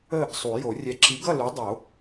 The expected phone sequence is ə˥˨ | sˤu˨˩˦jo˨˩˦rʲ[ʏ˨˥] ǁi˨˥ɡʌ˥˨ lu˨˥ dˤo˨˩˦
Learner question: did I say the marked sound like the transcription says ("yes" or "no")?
no